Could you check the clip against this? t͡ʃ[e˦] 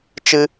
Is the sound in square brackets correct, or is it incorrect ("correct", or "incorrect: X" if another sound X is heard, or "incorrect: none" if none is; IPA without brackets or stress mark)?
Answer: incorrect: ɨ˦